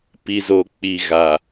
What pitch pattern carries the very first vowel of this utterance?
low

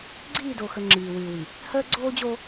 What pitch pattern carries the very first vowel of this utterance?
falling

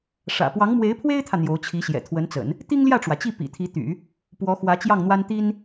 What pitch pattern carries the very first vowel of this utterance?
low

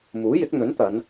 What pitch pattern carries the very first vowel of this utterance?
rising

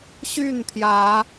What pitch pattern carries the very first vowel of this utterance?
falling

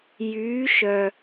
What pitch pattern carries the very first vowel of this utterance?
rising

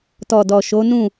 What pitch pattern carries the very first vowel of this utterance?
low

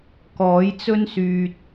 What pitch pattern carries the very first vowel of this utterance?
rising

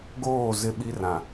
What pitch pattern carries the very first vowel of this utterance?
falling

